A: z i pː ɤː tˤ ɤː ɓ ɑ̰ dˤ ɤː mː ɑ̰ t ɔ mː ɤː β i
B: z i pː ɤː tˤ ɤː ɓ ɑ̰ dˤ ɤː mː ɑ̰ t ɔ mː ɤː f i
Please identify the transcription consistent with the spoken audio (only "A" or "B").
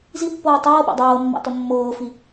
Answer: B